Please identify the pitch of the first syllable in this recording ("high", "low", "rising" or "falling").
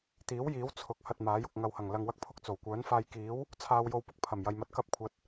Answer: rising